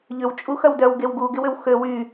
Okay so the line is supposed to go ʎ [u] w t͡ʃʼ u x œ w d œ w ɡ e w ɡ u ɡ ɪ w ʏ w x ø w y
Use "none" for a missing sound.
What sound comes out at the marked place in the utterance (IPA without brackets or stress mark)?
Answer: ʏ